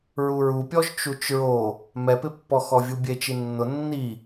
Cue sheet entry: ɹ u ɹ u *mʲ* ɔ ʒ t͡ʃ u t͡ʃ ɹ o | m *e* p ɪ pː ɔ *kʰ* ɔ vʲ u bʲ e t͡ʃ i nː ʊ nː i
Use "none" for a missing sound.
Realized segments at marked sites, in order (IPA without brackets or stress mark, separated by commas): pʲ, ɛ, x